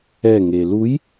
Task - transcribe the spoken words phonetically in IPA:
ɛ ŋeluj

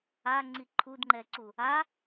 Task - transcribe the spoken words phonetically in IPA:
aŋ͡ǀi ǃʰudŋ͡ǃɛǀu | a

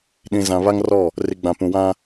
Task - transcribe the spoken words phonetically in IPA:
ɗĩ˨ zã˨βa˦ŋrɔ˦˨ | ri˨ɡ͡bã˨pũ˨ wã˦

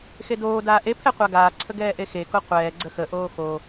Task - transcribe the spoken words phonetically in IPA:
xedoː daːʔepʰɛ qʷaɡaːǀʰə ɡɛːʔexeko qʷɛː ɡ͡ǀəxəʔoː xo

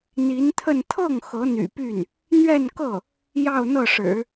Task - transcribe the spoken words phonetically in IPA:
n̪i˧˥nt̪ʰə˥˧n t̪ʰɤ˥˩ŋ xɤ˧˥n̪y̰˨˩py˥˩n | n̪ɥɛ˥˧n kɤ˥˩ | jɑ˥˧ʊ̯n̪ɤ˥˩ʂɻ̩˨˩˦

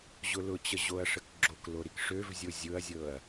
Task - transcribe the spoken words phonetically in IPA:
ʑʊlʊt͡ɕə ʑoɐ̯ʂəkɡ͡ǁoklo ɾikʂøvzʲo zʲʊɐ̯zʲɤɐ̯

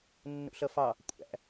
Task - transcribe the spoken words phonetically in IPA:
nːṵɬʌfɑ | kʷʼæ̰

